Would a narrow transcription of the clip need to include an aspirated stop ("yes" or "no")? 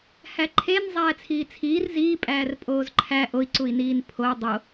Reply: yes